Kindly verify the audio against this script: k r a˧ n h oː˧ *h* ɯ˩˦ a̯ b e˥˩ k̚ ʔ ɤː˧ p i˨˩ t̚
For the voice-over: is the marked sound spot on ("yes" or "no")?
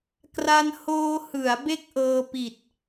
yes